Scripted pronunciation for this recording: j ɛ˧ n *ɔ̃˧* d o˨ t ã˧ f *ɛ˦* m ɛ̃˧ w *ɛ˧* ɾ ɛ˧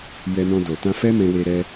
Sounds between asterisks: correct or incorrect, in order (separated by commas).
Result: correct, correct, incorrect